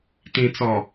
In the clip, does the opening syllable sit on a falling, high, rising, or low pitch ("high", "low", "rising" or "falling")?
low